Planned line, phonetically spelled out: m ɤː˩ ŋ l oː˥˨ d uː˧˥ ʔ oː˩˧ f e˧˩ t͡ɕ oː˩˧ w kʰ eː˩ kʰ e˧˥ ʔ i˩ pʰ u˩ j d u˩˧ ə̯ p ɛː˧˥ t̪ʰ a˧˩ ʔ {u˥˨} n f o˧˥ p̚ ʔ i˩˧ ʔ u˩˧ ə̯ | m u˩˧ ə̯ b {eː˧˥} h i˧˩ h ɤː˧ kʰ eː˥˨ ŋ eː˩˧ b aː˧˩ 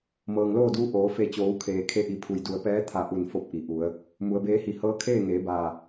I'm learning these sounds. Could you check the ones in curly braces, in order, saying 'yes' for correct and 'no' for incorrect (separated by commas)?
no, yes